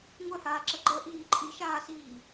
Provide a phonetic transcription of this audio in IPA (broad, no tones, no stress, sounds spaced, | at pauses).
ŋʷ œ h aː ǁ ə ɡ͡ǃ ə ʔ iː ǃʼ i ʃ aː s iː